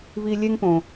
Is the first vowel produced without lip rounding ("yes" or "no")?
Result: yes